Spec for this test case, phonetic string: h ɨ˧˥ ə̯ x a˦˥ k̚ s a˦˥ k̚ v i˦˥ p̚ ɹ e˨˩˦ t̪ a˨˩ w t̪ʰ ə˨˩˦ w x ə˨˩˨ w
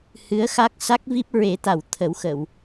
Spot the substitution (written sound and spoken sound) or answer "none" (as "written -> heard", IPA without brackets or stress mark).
none